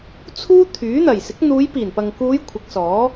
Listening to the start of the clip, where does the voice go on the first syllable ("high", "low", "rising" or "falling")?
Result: high